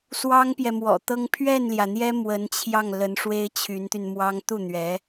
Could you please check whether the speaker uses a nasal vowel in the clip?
no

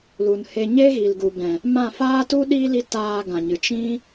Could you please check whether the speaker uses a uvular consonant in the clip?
no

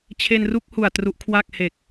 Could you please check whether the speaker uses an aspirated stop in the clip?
yes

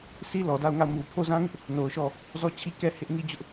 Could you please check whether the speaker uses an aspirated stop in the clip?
yes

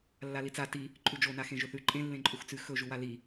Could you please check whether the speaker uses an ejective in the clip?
yes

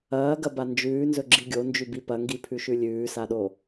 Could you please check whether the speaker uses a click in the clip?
yes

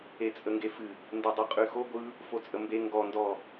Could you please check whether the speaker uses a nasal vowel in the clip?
no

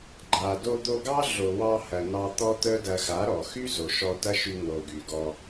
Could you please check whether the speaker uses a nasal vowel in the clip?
no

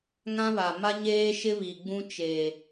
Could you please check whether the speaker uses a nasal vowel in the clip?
yes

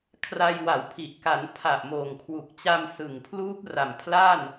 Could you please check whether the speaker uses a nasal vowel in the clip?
no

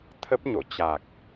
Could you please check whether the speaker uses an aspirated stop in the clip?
yes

